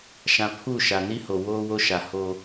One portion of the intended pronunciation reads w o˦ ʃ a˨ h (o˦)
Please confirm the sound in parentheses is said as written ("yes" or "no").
yes